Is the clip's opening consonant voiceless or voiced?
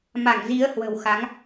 voiced